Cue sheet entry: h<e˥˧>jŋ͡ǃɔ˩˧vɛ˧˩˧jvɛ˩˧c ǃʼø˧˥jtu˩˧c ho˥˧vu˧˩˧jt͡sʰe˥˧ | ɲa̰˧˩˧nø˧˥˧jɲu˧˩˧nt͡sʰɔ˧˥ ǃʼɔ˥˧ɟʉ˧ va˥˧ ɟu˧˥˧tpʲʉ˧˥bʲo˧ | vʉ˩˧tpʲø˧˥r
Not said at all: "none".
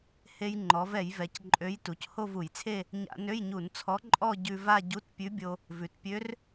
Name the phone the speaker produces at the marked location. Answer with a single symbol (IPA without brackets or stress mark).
e˧